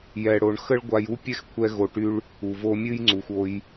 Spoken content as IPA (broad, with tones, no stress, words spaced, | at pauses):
jɛ˨ɽo˨ɳ xə˦ɭɡʷa˧ju˦ pʲɛ˦xkʷʰɛ˧ ɣo˧ʈy˦ɭ | u˨vo˧mʲɨ˦j ŋ͡ǀu˨xʷo˧j